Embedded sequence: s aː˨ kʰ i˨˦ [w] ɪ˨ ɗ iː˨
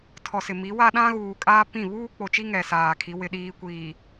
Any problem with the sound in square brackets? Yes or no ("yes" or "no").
no